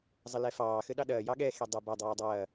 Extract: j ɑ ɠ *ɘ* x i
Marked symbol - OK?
no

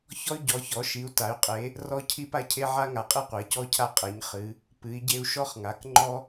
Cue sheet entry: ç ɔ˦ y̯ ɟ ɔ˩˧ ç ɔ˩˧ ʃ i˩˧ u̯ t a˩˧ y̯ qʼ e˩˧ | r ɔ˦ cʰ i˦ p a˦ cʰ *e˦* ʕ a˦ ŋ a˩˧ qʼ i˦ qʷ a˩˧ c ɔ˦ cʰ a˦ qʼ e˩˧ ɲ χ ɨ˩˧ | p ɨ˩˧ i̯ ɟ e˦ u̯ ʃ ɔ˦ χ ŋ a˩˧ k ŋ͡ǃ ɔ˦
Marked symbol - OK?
yes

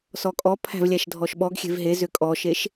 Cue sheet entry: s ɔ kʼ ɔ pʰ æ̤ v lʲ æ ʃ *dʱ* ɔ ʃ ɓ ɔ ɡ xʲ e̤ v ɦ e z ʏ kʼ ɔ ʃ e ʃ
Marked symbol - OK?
yes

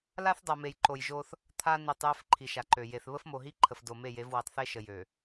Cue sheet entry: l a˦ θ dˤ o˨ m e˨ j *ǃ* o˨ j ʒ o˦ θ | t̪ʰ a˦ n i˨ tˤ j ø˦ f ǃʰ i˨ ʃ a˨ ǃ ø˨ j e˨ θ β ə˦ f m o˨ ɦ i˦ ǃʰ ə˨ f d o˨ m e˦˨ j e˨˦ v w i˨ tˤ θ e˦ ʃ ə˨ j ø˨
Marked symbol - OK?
yes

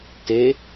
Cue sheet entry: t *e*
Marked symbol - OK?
yes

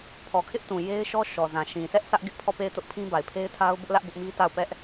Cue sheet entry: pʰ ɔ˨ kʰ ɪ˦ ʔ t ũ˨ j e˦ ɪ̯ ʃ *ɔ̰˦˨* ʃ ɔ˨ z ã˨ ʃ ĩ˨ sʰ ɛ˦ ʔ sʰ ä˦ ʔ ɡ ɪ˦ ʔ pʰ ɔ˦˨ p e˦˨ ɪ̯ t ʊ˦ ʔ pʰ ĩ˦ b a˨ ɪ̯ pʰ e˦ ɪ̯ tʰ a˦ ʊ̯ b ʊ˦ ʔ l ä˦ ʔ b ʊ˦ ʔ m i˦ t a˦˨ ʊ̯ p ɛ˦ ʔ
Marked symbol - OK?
no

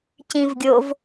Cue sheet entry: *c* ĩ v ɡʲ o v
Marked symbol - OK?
yes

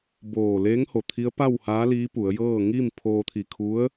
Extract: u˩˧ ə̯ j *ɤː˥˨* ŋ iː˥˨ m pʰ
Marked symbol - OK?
yes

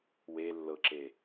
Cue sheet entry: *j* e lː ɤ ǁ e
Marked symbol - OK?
no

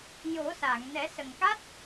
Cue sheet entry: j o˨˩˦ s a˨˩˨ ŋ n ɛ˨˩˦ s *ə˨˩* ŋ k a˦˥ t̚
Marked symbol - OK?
yes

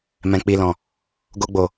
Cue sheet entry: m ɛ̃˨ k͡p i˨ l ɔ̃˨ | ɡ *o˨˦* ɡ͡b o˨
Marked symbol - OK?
no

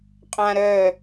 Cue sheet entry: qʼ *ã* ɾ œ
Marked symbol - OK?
yes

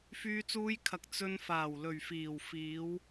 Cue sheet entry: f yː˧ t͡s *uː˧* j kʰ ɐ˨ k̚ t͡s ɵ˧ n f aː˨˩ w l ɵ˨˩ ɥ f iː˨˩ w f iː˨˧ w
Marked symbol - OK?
yes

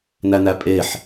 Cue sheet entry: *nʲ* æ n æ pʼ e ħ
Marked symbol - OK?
no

